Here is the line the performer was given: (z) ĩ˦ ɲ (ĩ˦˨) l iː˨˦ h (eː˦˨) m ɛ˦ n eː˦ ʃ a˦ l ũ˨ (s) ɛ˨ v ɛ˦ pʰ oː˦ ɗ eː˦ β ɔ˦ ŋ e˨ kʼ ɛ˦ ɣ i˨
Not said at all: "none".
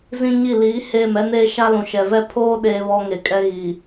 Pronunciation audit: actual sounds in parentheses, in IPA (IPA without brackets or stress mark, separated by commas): z, i˦˨, eː˦˨, ʃ